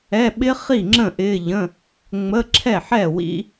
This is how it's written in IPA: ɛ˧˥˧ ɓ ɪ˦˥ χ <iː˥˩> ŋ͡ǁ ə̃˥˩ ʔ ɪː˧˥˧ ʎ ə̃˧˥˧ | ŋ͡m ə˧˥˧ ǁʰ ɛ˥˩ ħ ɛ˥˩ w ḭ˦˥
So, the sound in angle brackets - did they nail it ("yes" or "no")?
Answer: no